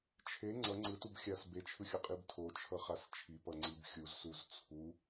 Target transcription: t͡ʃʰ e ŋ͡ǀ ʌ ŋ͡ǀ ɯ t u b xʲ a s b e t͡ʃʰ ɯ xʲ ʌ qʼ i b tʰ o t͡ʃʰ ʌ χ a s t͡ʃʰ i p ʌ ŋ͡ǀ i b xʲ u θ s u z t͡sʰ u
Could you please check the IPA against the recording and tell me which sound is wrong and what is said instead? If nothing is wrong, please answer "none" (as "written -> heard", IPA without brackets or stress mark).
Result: θ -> z